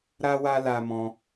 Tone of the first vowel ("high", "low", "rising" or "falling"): high